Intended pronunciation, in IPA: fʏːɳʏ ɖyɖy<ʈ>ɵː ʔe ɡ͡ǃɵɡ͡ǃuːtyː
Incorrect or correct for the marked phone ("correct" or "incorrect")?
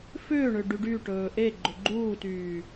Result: correct